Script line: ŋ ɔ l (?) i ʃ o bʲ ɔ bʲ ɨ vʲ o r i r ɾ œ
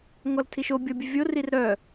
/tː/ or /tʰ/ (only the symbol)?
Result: tʰ